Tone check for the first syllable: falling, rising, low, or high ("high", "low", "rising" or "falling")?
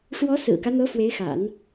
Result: rising